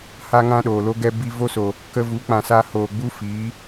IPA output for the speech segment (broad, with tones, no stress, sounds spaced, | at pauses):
h a˦ ŋ ã˦ ɗ oː˨ l o˦ ɡ ɛ˧ b i˧ v o˦ s o˨ | k ə˧ v u˨˦ k͡p ã˨ s a˧ h oː˨ ɡ͡b u˦ f iː˨˦